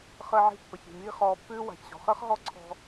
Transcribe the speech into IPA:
χəː˧ʕi̤˧ pːə˩çi̤˩miː˧ χɔː˧pːʉː˥ wa̤˩çɕɔ̤˩χəː˥χ ɦɔ˥ǀʰɔ̤˧

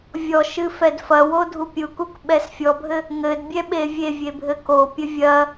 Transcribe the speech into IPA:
vʲɔʃɨ fɛdfɐwo dʱupʲukuk ɓɛsfʲɔbʱɘ | ŋɘdbʲɛ ɓevʲevʲe bʱɘkopʲɘ vʲɐ

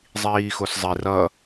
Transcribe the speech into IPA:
zˤiːxoszˤi rʌ

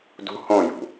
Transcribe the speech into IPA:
dṳ hõjṳ

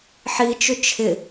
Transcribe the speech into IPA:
ħit͡ʃʏ t͡ʃʰɪ

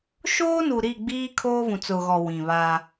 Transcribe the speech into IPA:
ʃoː˦nu˨ ɾi˦˨ɡ͡biː˦ kʰoː˦vũ˨t͡sʊ˨ɣɔ˨ wĩ˨βaː˦

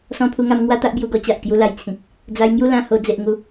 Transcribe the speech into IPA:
sɔ̃˧pʰu˧ŋa˧m ŋwa˦t̪a˦ʔbju˧ɡɔ˧ t͡ɕa˨ʔkju˧la˨˩jt͡sʰĩ˨k̚ | d͡za˧j ŋju˥˧lã˥˧ho˧ d͡ze˨ʔ ŋu˨˦

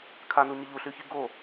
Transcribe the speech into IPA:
kʰanuɲɪ ʎuɬyçi ɡo

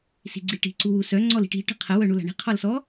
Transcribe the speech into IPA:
si̤ɡ͡ǀiʈi̤ ǀuwusœ ŋ͡ǀɔli̤ʈi̤ ʈə̤qʰə wœɳula̤ɳi̤ qʰɔlsɔ

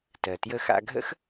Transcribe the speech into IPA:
tɜ˩tjə˧xa̰˧ɡʱə̰˥x

